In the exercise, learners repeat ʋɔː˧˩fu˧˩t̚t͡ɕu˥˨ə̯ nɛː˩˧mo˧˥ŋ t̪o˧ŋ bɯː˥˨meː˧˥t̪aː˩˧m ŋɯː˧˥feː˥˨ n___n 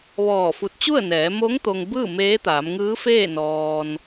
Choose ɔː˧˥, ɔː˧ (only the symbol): ɔː˧